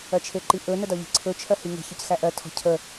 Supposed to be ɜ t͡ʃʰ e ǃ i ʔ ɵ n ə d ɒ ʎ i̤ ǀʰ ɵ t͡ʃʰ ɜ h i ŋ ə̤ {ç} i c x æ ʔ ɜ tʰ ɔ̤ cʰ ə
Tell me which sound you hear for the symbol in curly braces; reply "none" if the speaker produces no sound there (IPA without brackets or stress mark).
ç